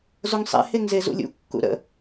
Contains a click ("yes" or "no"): no